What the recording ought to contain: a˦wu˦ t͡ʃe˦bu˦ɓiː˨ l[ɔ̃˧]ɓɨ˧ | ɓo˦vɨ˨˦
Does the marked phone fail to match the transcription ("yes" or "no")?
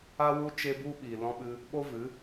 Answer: no